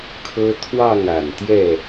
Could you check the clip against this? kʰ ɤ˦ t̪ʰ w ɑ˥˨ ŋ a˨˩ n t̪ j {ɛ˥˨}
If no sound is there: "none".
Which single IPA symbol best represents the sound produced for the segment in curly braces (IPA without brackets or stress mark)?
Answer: ɛ˥˨